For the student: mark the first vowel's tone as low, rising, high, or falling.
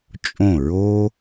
falling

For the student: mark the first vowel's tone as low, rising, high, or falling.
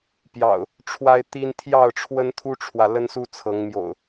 low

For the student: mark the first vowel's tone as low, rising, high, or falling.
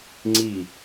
falling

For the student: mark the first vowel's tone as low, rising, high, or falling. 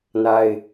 high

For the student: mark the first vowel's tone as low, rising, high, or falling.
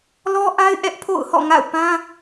high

